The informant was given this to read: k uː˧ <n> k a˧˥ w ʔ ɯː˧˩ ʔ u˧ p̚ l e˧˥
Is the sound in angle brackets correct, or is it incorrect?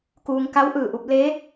incorrect